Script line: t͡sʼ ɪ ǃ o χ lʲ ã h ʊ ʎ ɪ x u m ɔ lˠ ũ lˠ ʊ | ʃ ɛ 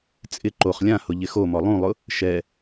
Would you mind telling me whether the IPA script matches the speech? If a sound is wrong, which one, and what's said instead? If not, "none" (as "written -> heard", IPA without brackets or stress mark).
u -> o